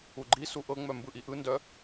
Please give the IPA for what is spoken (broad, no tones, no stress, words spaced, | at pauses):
uɡ͡ǃisu ʔɤŋ͡mœ mbɯʔiʔɯndœ